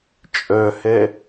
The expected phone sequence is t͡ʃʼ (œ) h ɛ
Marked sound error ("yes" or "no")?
no